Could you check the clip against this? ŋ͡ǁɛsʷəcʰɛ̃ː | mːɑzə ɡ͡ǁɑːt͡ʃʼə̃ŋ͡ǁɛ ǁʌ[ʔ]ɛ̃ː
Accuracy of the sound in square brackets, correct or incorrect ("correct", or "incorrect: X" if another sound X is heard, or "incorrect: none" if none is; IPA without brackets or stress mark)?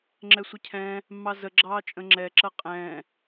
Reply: incorrect: qʼ